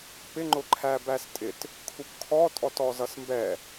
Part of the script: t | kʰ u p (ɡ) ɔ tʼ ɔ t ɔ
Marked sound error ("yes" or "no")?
yes